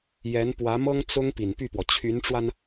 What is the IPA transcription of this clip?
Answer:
j ɛ˧˥ n p w ä˧˥ m ɤ˥ ŋ t͡s ʊ˥ ŋ p i˨˩ n p y˥˩ p w ɔ˩ t͡ɕʰ y˧˥ n ʈ͡ʂ w a˧ n

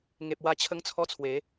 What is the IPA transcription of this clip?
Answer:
ŋ e˨ p̚ w a˧ t͡ɕʰ ə˦ ŋ t͡sʰ ɔ˦ t͡sʰ w e˨˦

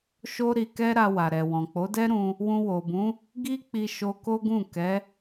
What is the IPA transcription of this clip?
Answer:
ʃ o˦ ɾ i˧ k ɛ˦ ɾ a˧ w a˨ ɾ ɛ˨ w ɔ̃˨ k͡p o˨˦ d ɛ˦ ɾ ũ˧ | w ũ˧ w o˨ b ũ˨˦ | ɡ i˦ k͡p i˧ ʃ o˦ k o˦ ɡ ũ˦˨ k ɛ˨˦

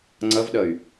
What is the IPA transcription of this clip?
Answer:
ŋ͡ǀ ʌ v ɗ ʌ y̯

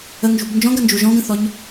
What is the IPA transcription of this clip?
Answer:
ə ŋ ʒ ṳ b n d͡ʒ ɔ̃ ɡ ɐ n d͡ʒ u ʒ ɔ̃ ɡ ə̃ θ ɔ ɲ

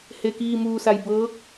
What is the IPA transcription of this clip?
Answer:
h e˩ k iː˧˩ m uː˧˩ s a˧˩ j b ɤː˧˥ k̚

